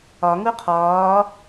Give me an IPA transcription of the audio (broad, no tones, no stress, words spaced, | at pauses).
ɒ ŋuqʰɒː